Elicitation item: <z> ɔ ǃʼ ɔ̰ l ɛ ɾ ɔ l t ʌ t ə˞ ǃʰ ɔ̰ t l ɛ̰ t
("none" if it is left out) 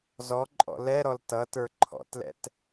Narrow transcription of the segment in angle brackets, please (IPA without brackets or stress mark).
z